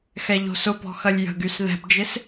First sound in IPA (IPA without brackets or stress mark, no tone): x